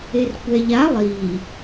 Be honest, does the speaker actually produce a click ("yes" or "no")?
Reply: no